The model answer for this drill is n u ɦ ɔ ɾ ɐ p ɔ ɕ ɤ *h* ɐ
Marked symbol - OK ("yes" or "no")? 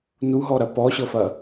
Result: no